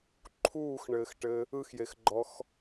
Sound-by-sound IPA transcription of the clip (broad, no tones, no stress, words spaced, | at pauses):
ǃʰuːxɳɘːxʈɘ | ɯxjexɡ͡ǃɔx